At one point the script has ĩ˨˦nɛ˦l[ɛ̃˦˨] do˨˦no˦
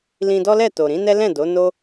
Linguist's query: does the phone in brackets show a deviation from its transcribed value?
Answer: no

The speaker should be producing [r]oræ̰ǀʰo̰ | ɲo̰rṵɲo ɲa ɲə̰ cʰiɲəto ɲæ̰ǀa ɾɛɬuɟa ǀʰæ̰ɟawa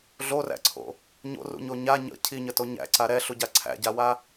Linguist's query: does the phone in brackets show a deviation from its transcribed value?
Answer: yes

